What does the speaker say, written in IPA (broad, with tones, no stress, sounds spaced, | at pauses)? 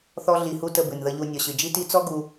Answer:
θ ɔ˦ ɮ i˨ h u˦ t ə˨ b ɨ˩ n ð ə˨ ʎ u˨ nʲ ɔ˩ ɕ ɨ˩ d͡ʒ i˦ t i˦ t͡s ɔ˥ ɡ u˨